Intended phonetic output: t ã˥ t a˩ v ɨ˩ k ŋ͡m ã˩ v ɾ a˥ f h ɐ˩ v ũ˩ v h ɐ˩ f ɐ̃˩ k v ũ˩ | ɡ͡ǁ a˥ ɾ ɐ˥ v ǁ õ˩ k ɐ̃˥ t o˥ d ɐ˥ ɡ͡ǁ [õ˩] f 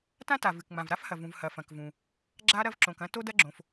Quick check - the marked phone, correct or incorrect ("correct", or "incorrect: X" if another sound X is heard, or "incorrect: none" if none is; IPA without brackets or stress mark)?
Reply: correct